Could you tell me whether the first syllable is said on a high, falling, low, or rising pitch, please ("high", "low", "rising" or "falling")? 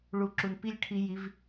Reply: low